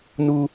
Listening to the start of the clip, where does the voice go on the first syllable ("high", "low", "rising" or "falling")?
high